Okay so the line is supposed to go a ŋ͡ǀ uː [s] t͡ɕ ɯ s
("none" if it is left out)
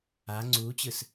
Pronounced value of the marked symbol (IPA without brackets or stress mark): none